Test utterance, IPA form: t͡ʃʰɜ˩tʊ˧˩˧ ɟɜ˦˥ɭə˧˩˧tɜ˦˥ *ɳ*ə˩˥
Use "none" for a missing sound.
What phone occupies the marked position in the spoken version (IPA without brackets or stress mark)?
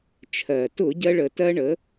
ɳ